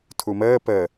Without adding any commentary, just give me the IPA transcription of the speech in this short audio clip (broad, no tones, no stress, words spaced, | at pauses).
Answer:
tʰuməː pə